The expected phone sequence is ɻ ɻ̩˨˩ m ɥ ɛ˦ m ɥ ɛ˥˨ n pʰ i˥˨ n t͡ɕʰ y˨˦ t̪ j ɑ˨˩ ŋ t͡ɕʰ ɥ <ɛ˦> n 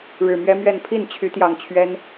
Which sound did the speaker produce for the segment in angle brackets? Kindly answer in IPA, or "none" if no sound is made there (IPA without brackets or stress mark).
ɛ˦